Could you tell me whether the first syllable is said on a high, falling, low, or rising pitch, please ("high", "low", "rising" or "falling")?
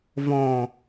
low